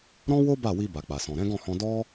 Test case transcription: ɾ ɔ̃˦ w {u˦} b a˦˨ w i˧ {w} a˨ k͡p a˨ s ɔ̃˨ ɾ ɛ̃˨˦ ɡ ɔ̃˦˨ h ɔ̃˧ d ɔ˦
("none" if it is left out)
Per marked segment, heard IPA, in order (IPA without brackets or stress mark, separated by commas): o˦, b